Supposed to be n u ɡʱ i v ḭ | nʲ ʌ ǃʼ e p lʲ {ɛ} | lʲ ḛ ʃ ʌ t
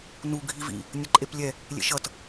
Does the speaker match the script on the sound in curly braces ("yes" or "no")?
yes